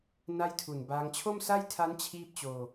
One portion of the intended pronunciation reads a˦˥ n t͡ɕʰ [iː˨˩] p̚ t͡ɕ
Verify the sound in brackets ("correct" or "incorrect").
incorrect